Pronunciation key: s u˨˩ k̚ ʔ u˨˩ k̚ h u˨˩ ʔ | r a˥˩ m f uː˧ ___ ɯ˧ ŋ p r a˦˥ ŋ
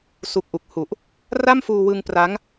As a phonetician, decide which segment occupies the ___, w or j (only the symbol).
w